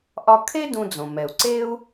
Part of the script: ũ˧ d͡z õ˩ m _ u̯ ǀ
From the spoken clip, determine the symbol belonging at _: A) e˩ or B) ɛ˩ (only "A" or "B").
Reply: B